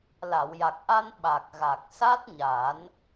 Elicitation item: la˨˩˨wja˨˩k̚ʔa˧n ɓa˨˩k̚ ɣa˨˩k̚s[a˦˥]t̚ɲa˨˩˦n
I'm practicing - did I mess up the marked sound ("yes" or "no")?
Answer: no